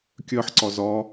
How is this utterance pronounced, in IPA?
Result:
kʲ ɜ ħ ǀ ɒ z ɒ

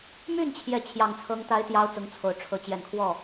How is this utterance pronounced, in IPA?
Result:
m y˥˩ n t͡ɕʰ j ɛ˧˥ t͡ɕʰ j ɑ˨˩ ŋ t͡sʰ ɤ˧˥ ŋ t̪ a˧˥ ɪ̯ t̪ j ɑ˧˥ ʊ̯ t͡s ʊ˧˥ ŋ t͡sʰ o˨˩ ʊ̯ ʈ͡ʂʰ ɤ˧˥ t͡ɕ j ɛ˨˩ n kʰ w ɔ˥˩

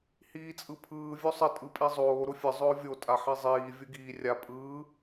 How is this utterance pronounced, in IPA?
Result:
h iː t͡sʼ ɯ pʰ ɯː vʲ o sˤ ɘ tʼ ɯ pʼ i zˤ oː ɾ ʊ fʲ ə zˤ ʊː vʲ o tʼ a ħ i zˤ iː vʲ ɯ ɡ iː rʲ a pʼ ɯː

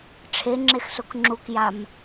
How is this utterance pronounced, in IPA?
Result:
ʈ͡ʂʰ e ŋ͡ǁ e x s o k ŋ͡ǁ u k j a m

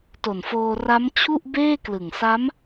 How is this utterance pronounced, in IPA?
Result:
t o˨˩ n f oː˧ r a˦˥ m t͡ɕʰ u˥˩ ʔ b eː˥˩ k l ɯ˨˩ ŋ s a˦˥ m

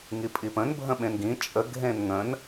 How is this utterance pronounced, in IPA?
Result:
ŋ i pʼ i p ə̃ n bʱ ə̃ ɓ ẽ n ɡ ĩ t͡ʃʼ ə ɡʱ ẽ n ŋ ə̃ n

